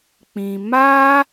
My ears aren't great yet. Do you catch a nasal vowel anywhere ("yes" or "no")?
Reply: yes